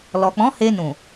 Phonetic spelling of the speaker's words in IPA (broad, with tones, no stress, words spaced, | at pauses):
lɔ˨k͡pɔ̃˨˦ he˧nũ˨